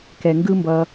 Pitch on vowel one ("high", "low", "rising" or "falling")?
low